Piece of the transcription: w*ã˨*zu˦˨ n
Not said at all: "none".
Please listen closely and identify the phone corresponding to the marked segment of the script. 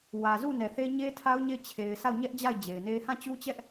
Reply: ä˨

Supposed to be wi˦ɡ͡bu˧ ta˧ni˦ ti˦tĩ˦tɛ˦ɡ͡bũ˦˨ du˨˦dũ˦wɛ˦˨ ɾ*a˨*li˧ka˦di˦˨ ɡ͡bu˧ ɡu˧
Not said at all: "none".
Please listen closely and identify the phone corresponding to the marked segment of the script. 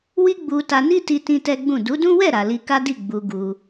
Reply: a˨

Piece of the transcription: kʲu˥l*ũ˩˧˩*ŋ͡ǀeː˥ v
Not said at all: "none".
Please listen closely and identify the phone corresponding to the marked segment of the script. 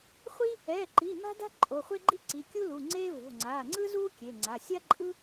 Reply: u˩˧˩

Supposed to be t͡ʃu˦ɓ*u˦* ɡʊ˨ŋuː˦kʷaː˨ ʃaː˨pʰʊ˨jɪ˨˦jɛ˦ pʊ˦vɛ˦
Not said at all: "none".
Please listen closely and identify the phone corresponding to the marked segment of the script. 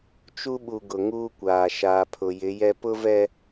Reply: u˨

